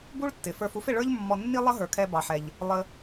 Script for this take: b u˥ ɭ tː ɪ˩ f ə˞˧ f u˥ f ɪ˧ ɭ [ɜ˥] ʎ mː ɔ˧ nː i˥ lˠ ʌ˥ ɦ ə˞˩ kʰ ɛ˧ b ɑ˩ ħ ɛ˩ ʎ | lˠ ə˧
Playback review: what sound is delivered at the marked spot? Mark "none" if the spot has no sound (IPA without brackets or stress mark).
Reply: ə˞˥